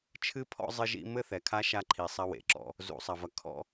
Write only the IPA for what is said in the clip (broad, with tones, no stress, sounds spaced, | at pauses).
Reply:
t͡ʃʰ ɨ˦ pʰ ɔ̰˦ zˤ ɨ˦ ʒ ḭ˦ m ɘ˦ θ ɛ˨ kʰ a˦ ʃ a˦ ǃʰ i˨ sˤ ɐ˦ w ḛ˨ ǁ ɔ̰˦ | z ṵ˨ sˤ ɐ˨ v ɐ˨ kʰ ɔ̰˦